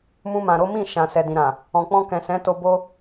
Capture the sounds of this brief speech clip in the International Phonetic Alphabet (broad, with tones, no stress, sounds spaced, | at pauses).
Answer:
m ũ˧ m ã˨ ɾ o˨˦ m ĩ˦˨ ʃ ã˨ s ɛ˨ d ĩ˨ ɾ ã˨ | ɔ̃˨ k͡p ɔ̃˧ k ɛ̃˨ s ɛ̃˨˦ t o˧ b o˦